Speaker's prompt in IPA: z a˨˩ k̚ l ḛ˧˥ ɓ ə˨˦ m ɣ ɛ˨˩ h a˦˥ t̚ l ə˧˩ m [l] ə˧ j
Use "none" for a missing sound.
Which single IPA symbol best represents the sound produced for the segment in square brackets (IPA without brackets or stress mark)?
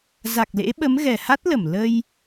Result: l